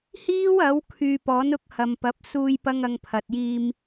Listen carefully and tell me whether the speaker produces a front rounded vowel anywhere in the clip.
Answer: yes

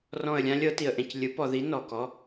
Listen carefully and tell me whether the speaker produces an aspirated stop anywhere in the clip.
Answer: no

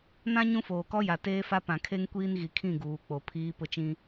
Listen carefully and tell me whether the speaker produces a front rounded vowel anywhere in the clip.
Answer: no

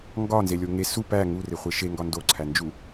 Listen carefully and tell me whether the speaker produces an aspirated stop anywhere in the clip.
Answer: yes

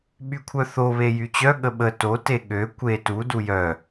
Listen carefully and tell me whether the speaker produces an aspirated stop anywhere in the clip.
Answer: yes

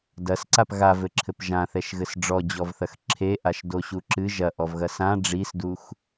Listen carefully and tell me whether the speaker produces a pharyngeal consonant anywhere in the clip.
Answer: no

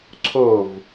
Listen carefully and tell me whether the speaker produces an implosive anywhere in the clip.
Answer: no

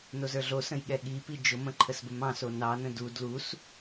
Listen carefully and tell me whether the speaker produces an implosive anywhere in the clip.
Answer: yes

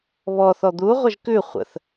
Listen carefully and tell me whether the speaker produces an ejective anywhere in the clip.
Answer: no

